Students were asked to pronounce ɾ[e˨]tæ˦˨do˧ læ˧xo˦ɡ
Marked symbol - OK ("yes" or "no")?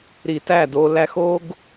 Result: no